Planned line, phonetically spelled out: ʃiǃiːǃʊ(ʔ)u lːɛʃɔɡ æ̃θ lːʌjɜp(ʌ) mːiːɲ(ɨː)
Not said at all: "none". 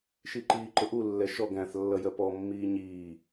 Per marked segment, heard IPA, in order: ʔ, ɔ, iː

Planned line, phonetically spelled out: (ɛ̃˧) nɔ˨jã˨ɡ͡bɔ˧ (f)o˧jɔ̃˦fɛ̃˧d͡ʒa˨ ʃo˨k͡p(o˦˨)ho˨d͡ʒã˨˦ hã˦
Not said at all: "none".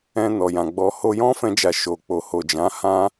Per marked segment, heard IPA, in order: ɛ̃˧, h, o˨

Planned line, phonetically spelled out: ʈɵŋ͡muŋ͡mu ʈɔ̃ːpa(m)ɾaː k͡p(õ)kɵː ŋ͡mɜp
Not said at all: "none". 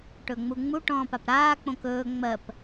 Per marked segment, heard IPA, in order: p, õ

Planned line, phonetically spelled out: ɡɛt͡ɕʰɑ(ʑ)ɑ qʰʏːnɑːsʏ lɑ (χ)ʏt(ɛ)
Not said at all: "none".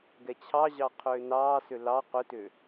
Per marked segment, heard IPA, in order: ʑ, q, ʏ

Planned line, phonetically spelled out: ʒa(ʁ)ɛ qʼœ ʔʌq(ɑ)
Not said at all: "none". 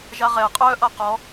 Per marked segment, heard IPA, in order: ʁ, ɔ

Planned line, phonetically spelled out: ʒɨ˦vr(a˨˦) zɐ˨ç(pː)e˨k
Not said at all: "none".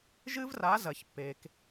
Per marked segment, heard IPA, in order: a˨˦, pː

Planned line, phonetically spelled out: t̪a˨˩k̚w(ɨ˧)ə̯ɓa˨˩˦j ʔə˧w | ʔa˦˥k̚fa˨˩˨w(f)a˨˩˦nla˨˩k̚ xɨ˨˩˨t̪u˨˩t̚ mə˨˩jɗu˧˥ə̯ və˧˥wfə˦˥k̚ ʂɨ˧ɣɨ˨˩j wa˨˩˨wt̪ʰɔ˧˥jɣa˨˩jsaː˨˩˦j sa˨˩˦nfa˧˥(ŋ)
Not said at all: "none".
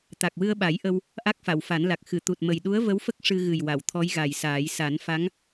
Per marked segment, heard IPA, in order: ɨ˧, f, ŋ

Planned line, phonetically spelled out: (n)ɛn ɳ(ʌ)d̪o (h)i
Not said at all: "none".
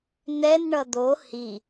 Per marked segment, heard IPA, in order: n, ʌ, h

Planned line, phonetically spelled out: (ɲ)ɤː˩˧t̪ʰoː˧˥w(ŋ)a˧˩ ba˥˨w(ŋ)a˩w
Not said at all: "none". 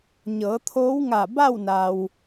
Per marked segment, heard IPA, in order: ɲ, ŋ, n

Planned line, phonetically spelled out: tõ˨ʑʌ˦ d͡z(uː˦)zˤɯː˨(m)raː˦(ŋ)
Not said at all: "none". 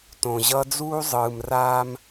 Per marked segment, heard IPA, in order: uː˦, m, m

